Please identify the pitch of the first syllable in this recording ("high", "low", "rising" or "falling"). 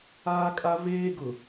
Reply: high